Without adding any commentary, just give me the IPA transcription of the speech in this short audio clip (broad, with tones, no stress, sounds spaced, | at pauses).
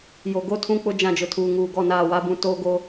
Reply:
j o˨ ɡ o˦ tʰ ũ˦ k͡p ʊ˦ d͡ʒ ã˦˨ d͡ʒ ʊ˨ tʰ uː˨ ŋ uː˨ ɡ ɔ˦˨ n aː˦˨ w a˦ b ũ˦˨ t oː˦ ɡ o˦